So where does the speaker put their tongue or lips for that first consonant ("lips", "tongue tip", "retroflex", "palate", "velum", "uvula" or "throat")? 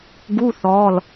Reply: velum